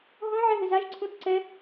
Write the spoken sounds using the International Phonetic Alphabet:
ɦɔ̃ ʕɛɦɪzaʒ ǀʰũθǀɛ

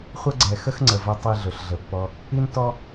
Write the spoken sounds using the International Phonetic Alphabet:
χʷə˦ ɡ͡ǀɛ˨ xə˦xŋ͡ǀə˨vɐ˧ tˤi˧ ɮɵ˨ɬɮə˨pːɔ˧ | i˦n tɔ˦

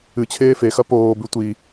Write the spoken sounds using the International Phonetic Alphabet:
ɨt͡ɕʰeː fexɐ poːbʉ tʷi

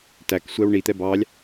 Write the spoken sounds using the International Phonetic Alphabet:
tæksʷɛw ɳit̪ɛ bɑlʲ

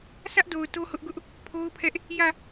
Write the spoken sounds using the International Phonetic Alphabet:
sʰä˦ʔdo˨ʊ̯ to˦hʊ˦ʔɡʊ˦ʔ | pʰo˦ʊ̯pʰɛ˦ʔ | jä˦˨

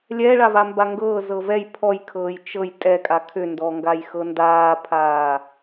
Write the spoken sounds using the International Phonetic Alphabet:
lʲɛ ɭavambaŋɡɤː zɤvɛj pʰɔjkʰɤːj t͡ʃɤj tʼɛkʼa kʰʏndɔŋɡajxɤ ndaːpʰaː

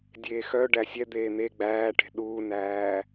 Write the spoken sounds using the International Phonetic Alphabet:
dʲeːxœ ɖæsʲɛd̪eː n̪e ɡ͡bæːʈe̤ ɗuːnæː

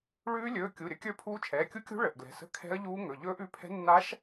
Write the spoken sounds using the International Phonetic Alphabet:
ɭʉː˦˥ lʲɵː˩˧˩ kʲu˩˧˩ɾʲə˦˥ kʲə˞˦˥pʰuː˦˥t͡ʃʰɛː˩˧˩ kʲu˦˥kʲṳ˦˥ ɭə˩˧˩ʔɡlɛ̤˩˧˩sə̤˦˥ kʰɛ̤˦˥ə̯ʎuː˦˥ŋɵ˩˧˩ ʎɵː˦˥ʔ ʉ˩˧˩pʰɛ̤˦˥ nːa˦˥ʃ

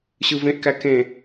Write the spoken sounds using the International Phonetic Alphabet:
ɕɯvẽʔkæ kẽ

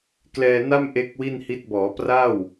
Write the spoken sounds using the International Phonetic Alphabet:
klɛː˧na˥˩mʔe˦˥k̚ wi˥˩nhi˦˥t̚ bɔː˩˦pra˥˩w

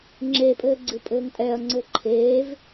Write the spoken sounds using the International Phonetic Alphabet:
ŋ͡ǁepʼɘː ɡ͡ǀɨpʼɘːŋtʼɛɐ̯ŋ͡ǀɘ ǃʰeːv

